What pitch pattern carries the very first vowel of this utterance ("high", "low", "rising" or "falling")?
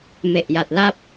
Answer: low